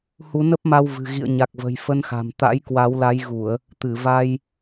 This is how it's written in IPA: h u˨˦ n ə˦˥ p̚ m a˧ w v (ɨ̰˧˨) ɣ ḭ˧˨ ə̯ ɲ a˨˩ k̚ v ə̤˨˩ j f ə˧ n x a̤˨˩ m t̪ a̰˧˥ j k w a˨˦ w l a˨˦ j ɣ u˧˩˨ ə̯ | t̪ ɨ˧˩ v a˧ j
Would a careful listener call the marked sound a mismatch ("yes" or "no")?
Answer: yes